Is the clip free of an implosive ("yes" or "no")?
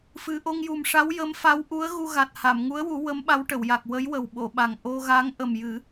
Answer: no